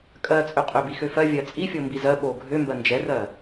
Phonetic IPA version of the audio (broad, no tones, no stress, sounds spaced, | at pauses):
kʼ ɜ t͡sʼ ø qʼ ø b i x ø f ɜ vʲ ɜ t͡sʼ i fʲ o m b i z ɜ ɓ o ɡʱ ø m b ɜ n d͡ʒ ɛ r ɜ